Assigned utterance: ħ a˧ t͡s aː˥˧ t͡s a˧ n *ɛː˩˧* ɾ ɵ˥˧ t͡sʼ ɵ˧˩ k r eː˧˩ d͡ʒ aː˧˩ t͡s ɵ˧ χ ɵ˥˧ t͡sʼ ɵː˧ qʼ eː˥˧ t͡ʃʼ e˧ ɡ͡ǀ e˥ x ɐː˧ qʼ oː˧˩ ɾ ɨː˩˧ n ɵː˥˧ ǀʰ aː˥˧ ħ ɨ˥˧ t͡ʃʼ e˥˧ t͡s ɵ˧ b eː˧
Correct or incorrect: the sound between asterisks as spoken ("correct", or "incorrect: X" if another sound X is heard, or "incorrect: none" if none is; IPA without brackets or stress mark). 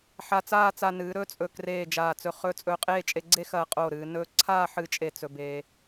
incorrect: ɨː˩˧